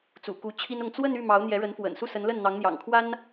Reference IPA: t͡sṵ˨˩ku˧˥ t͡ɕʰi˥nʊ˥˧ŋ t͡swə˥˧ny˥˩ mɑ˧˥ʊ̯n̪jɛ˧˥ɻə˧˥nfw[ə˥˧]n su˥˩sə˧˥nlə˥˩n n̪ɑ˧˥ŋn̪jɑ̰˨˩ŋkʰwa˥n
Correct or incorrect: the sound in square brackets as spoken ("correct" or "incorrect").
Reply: incorrect